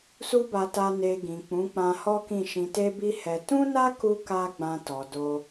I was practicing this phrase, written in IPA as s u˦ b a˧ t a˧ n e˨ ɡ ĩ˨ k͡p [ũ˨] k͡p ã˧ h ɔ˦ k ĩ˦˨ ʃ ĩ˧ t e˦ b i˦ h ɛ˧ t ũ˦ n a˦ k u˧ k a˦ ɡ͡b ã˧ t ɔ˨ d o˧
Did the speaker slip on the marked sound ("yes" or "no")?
yes